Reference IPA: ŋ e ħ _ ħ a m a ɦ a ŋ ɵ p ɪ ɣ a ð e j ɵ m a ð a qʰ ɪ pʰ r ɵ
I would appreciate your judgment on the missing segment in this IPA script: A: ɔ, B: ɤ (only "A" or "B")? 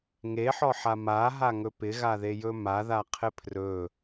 A